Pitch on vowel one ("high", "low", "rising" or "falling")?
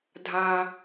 low